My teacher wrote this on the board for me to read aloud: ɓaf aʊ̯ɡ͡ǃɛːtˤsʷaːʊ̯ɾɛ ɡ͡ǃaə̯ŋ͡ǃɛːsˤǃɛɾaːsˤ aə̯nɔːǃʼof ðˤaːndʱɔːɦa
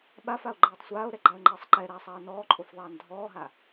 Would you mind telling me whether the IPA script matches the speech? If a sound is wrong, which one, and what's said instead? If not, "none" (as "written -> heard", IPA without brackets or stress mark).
none